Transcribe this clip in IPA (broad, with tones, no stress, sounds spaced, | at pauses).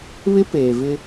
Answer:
β ɪ˦ p eː˨ v ɪ˦